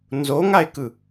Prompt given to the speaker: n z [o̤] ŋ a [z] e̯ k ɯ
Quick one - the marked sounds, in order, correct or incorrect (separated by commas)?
incorrect, incorrect